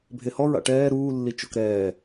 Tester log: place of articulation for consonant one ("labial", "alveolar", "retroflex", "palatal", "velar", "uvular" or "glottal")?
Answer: labial